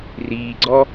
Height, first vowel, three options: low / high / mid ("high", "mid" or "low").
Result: high